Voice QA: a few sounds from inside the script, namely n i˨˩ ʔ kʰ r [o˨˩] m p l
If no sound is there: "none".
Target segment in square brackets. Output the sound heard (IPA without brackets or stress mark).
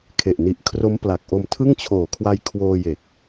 o˦˥